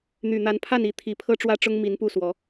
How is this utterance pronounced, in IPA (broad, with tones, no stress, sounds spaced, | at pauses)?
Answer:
n̪ y˨˩ n̪ a˨˦ n pʰ a˥˨ n i˨˦ t̪ʰ i˨˩ pʰ ɤ˦ ʈ͡ʂ w ä˦ ʈ͡ʂ ʊ˦ ŋ m i˨˦ n p u˥˨ s w ɔ˨˦